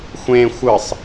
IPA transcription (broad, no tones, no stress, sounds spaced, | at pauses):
xʷ ẽ xʷ ɯ sˤ